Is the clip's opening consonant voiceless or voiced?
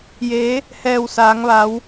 voiced